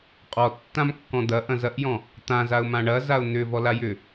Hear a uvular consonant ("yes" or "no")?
yes